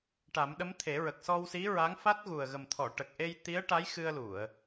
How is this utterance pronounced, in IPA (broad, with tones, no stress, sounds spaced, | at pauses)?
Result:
ʈ a˨˩˦ m ɗ ə˧˥ m t̪ʰ e˨˩˦ ɹ ə˨˩ k̚ s ɔ˧ w s i˧˥ ɹ a˧˥ ŋ f a˦˥ t̚ ɣ u˨˩ ə̯ ɣ ə˨˩ m t̪ʰ ɔ˨˩˨ ʈ ə˨˩ k̚ ʔ e˧ j t̪ i˧˥ ə̯ ʈ a˧˥ j x ɨ˧ ə̯ l u˨˩˨ ə̯